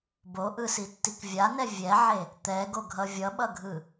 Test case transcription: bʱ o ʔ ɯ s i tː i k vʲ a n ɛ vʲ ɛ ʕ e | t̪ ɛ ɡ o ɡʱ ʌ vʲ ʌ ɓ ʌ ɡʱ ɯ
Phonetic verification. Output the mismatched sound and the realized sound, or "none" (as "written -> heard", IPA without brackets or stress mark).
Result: bʱ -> b